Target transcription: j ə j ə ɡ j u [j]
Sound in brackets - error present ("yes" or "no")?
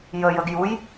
no